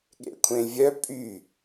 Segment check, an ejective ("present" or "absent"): present